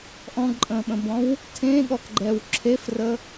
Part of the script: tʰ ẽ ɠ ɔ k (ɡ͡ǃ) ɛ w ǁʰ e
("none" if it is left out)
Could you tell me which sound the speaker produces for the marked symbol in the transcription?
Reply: ɡ͡ǃ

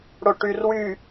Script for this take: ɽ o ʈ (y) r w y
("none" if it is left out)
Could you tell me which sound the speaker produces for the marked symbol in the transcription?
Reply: y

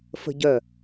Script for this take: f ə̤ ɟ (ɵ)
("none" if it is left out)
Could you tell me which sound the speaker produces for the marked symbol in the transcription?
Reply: œ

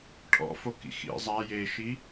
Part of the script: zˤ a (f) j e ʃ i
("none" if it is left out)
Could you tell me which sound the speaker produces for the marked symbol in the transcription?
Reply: none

